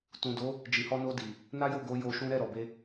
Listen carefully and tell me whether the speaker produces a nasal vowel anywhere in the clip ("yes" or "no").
yes